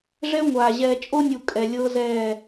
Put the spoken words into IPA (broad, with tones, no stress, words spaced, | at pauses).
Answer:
ʐɛ˦ŋʷaː˨ ʑɛː˨t͡ʃʼo˦nʲu˨ kʼɛ˨ lʲɤː˦zɛː˦˨